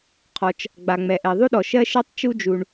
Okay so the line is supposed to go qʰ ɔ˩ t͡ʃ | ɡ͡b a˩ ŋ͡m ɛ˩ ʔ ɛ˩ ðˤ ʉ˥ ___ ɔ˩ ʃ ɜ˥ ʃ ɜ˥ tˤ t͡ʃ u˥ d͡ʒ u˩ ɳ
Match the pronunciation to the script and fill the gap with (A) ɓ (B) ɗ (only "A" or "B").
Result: B